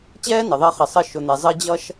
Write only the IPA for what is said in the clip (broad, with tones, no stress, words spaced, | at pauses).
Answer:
t͡ɕɛː˥nə˩ ðˤɜ˦χəː˨sˤəː˦ ʃʊ˨n̪ɛ˨zˤəː˦ d͡ʑʌː˦ʃ